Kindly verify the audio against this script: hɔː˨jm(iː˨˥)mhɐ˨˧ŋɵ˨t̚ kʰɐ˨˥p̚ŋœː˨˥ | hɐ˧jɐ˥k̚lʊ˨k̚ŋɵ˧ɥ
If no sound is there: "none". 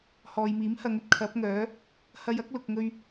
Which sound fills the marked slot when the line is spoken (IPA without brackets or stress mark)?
iː˨˥